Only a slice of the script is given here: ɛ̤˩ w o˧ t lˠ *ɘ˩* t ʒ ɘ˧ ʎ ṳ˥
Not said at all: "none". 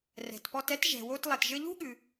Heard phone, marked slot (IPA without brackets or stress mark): ɛ˩